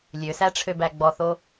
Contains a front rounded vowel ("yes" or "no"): yes